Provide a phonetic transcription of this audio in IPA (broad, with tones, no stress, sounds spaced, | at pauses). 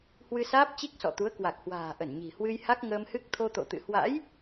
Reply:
h w ɨ˧ s aː˦˥ p̚ t͡ɕ i˦˥ k̚ s ɔ̰˧˨ t̪ u˨˦ ə̯ k w a˨˩ k̚ h w a̤ː˨˩ ʔ ə˧˩ n ɲ i̤˨˩ h w ɨ˧ j h a˦˥ k̚ ŋ əː˧ m h ɨ˦˥ k̚ t̪ʰ o˧ t̪ o̰˧˨ t̪ ɨ̰˧˨ h w a̰˧˥ j